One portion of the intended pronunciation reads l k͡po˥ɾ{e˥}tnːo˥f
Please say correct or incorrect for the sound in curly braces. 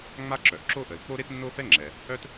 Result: correct